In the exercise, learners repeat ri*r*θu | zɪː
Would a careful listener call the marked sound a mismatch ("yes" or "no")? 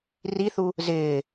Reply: yes